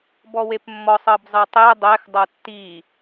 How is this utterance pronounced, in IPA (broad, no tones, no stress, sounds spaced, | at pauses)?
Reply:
b ɔ w e p mː ɔ sˤ ɤ b zˤ ɯ tˤ e dˤ ɛ x dˤ ɤ tː i